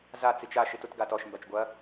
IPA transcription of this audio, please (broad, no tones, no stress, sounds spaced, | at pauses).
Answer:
z a t͡s i t͡ʃ a ʃ i t u t ɡ a t ɔ ʃ m b a t͡ʃ ɡʷ ɐ